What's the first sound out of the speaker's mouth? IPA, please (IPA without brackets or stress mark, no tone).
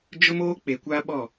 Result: d͡ʒ